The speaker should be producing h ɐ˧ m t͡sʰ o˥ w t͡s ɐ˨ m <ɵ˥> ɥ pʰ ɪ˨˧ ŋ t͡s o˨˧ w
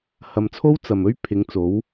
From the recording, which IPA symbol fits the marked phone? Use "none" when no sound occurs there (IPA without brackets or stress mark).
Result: ɵ˥